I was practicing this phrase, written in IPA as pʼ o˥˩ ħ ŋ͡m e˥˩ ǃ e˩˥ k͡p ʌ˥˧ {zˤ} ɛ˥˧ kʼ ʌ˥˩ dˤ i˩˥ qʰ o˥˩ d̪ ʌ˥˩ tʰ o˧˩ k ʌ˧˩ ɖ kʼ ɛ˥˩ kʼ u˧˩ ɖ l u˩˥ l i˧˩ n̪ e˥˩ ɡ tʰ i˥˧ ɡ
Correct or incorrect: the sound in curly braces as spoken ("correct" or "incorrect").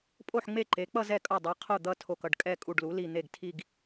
incorrect